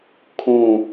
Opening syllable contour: falling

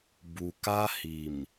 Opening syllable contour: low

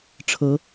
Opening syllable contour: rising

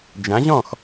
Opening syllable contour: rising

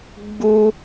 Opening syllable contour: high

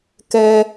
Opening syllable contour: low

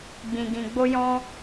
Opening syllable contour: low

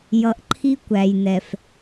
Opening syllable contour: low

